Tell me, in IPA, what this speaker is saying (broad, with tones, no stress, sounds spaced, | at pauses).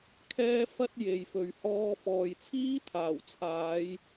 kʰ ɛː˥ f ɐ˥ t̚ j e˨ j f ɵ˨ ɥ h ɔː˧ f ɔː˨ j t͡sʰ iː˥ t̪ʰ aː˨˩ w t͡sʰ aː˨˧ j